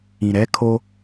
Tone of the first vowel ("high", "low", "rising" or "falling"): low